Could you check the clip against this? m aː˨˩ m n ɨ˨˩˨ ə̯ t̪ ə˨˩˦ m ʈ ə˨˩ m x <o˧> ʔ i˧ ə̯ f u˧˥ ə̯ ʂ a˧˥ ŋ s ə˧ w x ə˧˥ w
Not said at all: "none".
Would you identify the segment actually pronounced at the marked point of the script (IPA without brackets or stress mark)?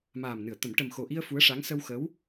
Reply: o˨˩